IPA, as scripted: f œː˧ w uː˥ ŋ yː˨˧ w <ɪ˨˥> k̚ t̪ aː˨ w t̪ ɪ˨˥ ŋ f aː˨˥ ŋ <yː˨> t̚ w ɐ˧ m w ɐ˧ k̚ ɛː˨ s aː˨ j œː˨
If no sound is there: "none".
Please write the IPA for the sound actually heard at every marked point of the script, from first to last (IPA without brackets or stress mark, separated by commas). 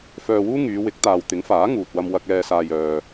ɪ˨˥, uː˨